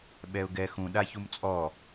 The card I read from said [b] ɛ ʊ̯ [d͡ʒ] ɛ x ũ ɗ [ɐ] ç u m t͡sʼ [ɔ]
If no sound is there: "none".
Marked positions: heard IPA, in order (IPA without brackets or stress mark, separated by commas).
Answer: ɓ, ɡ, a, ɔ